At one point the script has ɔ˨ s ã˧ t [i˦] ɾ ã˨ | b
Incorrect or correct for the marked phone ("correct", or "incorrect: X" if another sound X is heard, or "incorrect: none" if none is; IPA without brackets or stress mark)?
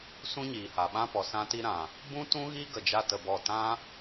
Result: incorrect: i˧